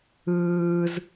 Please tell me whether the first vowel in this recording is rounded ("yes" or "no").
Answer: no